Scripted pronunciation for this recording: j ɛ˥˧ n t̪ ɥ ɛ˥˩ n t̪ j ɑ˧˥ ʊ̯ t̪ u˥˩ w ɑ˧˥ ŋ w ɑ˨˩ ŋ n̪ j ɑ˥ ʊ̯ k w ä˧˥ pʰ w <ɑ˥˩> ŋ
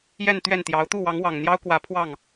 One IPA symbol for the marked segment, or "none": ɑ˥˩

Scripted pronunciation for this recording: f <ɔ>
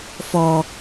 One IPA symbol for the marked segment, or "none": ɔ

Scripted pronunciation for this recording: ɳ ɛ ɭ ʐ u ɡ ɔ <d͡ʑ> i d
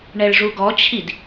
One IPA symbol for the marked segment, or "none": t͡ɕʰ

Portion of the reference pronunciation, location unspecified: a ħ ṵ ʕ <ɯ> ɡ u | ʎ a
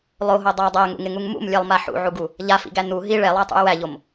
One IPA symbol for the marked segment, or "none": u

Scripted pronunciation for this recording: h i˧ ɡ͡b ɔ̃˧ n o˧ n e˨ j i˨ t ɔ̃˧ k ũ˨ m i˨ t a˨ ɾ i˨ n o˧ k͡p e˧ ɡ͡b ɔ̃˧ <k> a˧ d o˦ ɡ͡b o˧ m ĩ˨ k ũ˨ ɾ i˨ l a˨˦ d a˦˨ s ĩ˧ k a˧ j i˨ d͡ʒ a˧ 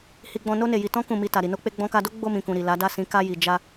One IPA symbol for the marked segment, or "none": k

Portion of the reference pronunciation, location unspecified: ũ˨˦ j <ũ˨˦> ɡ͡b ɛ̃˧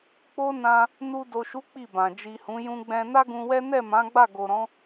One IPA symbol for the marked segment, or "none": ũ˧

